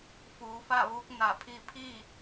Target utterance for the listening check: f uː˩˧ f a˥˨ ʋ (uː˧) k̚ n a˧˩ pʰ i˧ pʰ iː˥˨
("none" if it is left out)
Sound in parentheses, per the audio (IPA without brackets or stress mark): uː˧˥